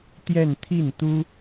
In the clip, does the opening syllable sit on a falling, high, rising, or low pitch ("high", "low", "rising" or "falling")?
falling